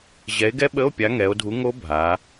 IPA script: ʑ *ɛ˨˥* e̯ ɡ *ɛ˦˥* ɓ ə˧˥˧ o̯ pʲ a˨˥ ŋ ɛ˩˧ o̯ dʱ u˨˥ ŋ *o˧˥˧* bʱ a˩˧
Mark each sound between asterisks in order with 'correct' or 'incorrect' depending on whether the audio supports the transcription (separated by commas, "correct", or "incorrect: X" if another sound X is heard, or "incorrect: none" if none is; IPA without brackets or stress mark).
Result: correct, correct, incorrect: o˦˥